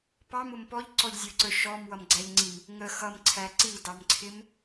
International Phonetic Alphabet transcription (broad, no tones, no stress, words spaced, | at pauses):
pɑmʊm pɔʎǀɔʎzʲə˞ǀə˞ ʃɔmwʌmɡ͡ǀæʎŋ͡ǀim | ŋə xʌmǀʰæ ǀidɑmǀʰɪm